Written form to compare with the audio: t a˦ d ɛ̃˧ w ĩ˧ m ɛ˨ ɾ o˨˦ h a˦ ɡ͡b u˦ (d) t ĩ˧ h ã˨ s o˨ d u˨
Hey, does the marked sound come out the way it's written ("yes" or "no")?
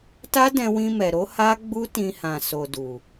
no